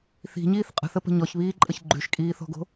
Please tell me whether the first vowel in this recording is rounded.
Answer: no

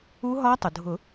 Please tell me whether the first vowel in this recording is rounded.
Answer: yes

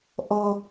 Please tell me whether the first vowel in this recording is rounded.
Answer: yes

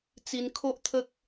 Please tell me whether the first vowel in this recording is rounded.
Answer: no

